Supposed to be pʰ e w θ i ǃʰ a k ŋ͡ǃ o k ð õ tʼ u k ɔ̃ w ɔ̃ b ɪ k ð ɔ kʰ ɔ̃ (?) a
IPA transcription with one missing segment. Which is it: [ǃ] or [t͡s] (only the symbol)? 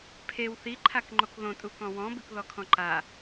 ǃ